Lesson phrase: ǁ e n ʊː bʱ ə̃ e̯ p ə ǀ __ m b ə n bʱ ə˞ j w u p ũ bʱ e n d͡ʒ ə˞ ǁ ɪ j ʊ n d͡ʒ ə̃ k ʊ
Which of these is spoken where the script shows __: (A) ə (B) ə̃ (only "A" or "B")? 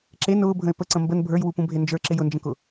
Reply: B